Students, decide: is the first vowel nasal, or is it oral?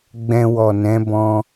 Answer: nasal